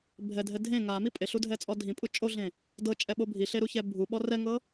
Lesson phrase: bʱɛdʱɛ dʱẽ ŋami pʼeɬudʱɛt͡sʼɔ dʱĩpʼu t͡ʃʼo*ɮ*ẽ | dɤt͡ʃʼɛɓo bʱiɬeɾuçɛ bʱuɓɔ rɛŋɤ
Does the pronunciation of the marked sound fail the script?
no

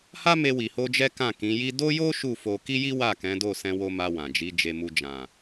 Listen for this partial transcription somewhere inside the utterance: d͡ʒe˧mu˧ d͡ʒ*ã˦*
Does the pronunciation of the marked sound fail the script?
yes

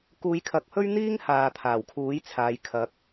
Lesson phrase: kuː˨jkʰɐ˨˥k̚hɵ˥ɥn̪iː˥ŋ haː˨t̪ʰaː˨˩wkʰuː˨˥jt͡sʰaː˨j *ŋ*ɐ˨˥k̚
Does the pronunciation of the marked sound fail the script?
yes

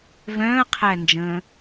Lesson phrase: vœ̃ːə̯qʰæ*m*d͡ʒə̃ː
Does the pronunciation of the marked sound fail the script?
yes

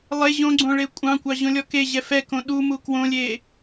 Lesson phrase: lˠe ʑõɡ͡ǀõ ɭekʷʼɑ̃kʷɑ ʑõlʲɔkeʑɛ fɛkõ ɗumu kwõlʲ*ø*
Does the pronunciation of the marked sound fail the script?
yes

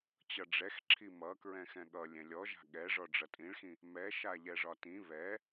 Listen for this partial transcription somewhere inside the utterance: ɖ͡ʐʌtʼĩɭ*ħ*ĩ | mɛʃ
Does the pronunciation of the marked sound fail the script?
yes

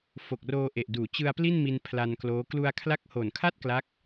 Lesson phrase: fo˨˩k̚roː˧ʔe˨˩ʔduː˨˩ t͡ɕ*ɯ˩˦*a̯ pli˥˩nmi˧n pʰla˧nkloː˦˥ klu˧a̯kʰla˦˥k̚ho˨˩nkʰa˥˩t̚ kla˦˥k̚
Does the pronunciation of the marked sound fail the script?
yes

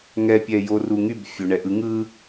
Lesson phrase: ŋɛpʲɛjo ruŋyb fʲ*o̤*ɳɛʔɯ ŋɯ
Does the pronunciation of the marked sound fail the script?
yes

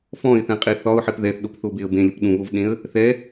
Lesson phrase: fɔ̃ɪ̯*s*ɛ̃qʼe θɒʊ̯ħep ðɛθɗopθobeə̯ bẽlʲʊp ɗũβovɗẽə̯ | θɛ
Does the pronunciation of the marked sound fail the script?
yes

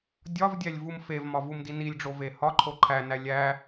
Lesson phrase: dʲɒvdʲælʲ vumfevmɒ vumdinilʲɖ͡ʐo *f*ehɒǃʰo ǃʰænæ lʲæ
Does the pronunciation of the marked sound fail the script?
yes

